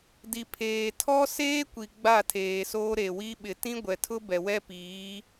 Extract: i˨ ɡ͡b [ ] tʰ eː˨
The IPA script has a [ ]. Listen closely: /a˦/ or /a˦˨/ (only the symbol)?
a˦˨